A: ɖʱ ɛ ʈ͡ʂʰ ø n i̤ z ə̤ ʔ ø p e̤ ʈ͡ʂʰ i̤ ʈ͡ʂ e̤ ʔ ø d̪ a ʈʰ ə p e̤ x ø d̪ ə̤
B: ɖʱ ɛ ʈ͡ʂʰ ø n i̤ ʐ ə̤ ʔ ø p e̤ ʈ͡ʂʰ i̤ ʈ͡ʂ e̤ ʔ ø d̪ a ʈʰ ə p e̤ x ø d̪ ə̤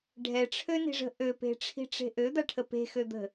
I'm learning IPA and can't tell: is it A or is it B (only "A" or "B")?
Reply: B